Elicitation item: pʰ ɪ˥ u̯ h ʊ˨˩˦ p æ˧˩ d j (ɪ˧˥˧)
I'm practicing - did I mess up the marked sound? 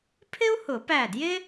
yes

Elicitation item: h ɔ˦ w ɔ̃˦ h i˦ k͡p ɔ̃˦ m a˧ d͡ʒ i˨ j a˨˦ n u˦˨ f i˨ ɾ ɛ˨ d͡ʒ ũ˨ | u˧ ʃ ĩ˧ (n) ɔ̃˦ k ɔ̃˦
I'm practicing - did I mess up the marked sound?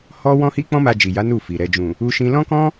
yes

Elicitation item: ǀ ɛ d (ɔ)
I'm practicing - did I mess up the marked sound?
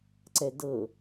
yes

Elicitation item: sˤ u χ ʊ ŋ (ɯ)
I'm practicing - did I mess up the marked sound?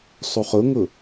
yes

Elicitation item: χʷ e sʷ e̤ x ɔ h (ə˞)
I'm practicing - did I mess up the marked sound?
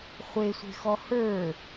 no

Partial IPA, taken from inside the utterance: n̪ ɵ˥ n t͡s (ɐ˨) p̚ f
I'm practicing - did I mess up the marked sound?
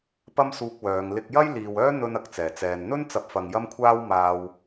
yes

